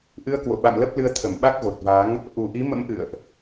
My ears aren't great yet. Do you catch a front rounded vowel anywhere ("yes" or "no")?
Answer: no